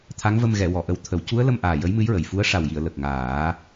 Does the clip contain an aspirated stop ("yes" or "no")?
yes